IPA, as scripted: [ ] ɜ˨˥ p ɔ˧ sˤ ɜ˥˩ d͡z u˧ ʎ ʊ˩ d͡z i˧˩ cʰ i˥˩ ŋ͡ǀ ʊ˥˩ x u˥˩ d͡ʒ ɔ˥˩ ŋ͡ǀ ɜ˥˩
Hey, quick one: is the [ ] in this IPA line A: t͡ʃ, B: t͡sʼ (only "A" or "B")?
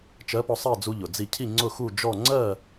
A